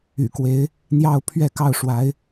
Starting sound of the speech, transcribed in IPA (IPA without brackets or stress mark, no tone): y̰